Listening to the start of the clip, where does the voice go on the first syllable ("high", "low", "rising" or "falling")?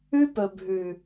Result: high